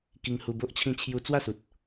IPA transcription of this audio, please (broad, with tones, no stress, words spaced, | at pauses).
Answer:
ki˧ŋhu˧bo˦ʔ t͡ɕʰĩ˥˧t͡ɕʰju˦ t͡swa˥˧su˨t̚